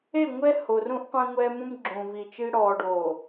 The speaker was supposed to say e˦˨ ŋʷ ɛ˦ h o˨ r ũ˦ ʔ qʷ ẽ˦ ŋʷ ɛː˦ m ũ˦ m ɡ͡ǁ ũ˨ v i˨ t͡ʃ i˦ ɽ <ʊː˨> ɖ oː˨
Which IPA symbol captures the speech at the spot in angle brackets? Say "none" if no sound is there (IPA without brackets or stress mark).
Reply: ɔː˨